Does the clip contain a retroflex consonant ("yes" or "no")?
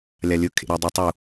no